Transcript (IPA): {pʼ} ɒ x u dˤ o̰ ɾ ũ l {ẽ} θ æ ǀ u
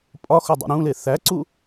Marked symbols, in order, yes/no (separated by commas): yes, no